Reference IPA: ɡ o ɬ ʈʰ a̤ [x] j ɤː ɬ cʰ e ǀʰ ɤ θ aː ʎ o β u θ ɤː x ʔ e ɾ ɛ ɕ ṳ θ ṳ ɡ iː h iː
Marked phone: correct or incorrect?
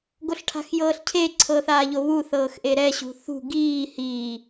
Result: correct